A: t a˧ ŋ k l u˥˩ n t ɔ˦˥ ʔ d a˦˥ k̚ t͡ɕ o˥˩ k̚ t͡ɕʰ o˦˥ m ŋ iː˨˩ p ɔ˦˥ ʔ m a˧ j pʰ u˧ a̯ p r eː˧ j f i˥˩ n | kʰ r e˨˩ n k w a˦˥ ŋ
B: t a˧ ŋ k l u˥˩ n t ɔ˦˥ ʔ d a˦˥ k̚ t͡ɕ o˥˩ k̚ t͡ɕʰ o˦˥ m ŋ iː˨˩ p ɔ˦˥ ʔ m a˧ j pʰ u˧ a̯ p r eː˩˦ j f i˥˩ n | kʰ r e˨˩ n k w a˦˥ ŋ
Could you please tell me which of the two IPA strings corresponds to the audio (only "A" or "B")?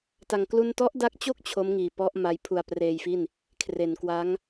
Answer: A